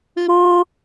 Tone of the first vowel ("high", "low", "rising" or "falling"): high